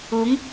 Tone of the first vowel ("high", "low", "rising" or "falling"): rising